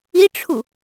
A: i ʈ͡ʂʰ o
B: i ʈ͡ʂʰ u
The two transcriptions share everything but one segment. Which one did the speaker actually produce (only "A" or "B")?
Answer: B